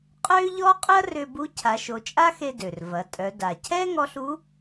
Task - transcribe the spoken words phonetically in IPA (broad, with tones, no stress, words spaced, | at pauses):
qʼø˥ʎɔ˥ qʼʏ˥ɐ̯rʏ˧bu˧˥ cʰa˩˧ʃo˩˧t͡ʃʼa˥xe˧ dø˩rvɐ˩˧tʼœ˩˧ da˩cʰɛ˥ ŋɔ˧˥ɬu˧˥